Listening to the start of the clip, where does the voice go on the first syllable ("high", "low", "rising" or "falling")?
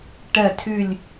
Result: falling